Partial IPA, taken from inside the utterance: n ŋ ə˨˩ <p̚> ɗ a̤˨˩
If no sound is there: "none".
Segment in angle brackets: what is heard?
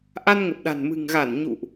p̚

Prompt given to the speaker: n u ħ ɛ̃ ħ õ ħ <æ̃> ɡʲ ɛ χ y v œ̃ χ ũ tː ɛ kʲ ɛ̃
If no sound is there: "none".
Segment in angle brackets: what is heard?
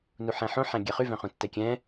æ̃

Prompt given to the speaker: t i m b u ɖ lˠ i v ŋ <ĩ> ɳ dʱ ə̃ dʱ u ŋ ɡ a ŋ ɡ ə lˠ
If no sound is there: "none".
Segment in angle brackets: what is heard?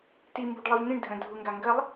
ĩ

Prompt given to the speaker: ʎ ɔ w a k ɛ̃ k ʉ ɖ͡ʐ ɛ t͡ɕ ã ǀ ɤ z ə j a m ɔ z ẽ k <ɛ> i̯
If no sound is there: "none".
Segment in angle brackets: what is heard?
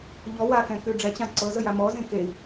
e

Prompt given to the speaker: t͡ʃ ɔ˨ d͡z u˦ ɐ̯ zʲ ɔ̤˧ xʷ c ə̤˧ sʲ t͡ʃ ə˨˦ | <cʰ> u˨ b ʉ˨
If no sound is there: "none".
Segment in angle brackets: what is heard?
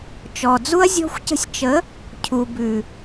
cʰ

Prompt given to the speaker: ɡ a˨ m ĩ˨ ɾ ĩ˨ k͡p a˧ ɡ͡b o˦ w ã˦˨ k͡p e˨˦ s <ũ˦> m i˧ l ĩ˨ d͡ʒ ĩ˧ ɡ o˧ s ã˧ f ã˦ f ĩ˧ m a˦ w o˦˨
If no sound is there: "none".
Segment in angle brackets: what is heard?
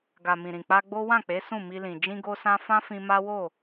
ũ˦˨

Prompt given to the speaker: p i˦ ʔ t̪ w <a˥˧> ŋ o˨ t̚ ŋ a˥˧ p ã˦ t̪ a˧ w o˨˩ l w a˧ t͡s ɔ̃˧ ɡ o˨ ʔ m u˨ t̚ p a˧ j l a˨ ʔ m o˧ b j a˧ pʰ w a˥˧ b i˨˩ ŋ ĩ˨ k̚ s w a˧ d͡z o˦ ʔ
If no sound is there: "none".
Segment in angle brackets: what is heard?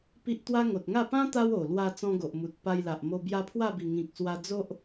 a˦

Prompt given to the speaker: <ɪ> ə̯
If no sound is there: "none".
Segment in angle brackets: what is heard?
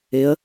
ɪ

